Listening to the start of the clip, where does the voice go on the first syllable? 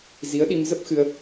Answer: rising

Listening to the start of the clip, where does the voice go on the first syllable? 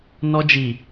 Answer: high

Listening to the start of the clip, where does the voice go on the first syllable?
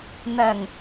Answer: low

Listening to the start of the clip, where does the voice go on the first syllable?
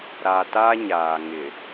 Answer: low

